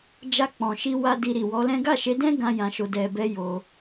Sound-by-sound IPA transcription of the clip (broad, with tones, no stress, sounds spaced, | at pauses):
d͡ʒ a˧ k͡p ɔ̃˨ ʃ i˧ w a˧ d i˧ ɾ i˨ w ɔ˨˦ l ɛ̃˦ ɡ a˦˨ ʃ e˨˦ d ɛ̃˦ ɡ ã˦ j ã˧ ʃ o˨ d ɛ˨ b ɛ˧ j o˧